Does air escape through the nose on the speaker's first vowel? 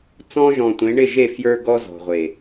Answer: yes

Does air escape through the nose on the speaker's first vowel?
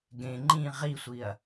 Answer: yes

